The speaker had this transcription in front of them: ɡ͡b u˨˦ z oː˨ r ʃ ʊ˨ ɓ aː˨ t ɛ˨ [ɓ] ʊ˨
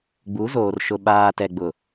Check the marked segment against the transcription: incorrect: ɡ͡b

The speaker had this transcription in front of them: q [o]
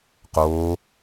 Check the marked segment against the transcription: incorrect: oː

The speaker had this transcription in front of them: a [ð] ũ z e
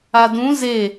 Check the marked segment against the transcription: incorrect: d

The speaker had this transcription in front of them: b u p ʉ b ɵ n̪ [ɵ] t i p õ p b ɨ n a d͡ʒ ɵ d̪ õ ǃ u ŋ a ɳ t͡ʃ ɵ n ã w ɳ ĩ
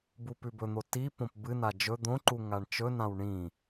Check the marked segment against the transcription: incorrect: o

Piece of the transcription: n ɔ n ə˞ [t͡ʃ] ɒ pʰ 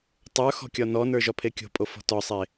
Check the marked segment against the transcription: incorrect: ʒ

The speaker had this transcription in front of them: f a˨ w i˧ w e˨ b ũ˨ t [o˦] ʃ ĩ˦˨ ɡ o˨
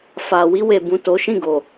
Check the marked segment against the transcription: incorrect: o˨˦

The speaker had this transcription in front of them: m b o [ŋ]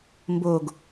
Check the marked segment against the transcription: incorrect: ɡ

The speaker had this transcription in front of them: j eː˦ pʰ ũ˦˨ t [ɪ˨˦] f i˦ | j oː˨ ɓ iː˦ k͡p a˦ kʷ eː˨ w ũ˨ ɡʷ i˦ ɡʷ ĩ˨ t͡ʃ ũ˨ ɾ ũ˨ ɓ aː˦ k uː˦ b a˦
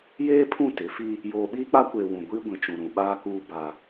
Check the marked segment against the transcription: correct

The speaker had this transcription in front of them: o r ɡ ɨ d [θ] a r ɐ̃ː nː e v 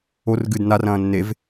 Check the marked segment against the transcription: incorrect: n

